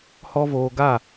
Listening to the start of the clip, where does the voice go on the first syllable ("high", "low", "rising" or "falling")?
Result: high